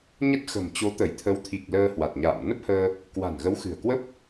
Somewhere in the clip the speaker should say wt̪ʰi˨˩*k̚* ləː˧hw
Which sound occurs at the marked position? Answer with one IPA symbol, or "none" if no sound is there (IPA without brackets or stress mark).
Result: k̚